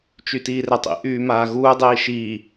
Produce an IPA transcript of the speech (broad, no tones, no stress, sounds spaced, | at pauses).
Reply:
t͡ʃ y t iː r ɛ tˤ ḭ ʔ yː m aː ɣ uː dˤ iː ʃ iː